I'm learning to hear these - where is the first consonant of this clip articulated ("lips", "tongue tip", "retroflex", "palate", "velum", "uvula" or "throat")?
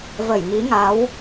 lips